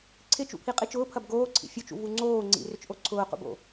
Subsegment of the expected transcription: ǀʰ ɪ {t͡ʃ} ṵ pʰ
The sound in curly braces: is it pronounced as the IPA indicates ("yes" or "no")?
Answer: yes